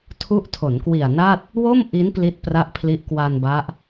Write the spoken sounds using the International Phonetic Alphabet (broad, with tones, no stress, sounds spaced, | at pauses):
tʰ u˦˥ ʔ tʰ o˩˦ n k w i˨˩ a̯ n a˥˩ t̚ | w o˥˩ m ʔ i˦˥ n p l i˦˥ t̚ p r a˦˥ ʔ pʰ l i˦˥ ʔ k w a˧ n b a˦˥ ʔ